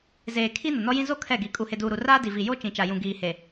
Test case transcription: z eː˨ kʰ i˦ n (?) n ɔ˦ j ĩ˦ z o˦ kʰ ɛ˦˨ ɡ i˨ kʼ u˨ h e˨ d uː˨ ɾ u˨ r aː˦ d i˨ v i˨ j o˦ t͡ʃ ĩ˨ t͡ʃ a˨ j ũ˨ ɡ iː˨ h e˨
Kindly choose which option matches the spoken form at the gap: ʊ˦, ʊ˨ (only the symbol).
ʊ˨